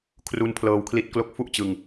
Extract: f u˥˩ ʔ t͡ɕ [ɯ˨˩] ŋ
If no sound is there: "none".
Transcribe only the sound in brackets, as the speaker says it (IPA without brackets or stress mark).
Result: ɯ˨˩